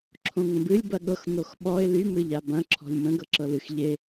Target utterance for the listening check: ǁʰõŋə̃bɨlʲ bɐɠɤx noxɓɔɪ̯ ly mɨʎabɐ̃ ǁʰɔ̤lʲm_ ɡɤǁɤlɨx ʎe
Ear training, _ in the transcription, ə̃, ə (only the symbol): ə̃